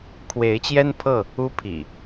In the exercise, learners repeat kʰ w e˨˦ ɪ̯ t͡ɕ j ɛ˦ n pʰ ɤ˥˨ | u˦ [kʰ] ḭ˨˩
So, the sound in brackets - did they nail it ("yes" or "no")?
no